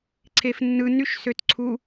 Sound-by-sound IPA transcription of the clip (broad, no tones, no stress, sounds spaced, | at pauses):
ǀʰ e f nː ɯ n y ʃ s ø t ǀʰ u